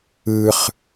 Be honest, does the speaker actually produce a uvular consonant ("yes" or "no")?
yes